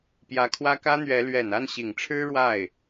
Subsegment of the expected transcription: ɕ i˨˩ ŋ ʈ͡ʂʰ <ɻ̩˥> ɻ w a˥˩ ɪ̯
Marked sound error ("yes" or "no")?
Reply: no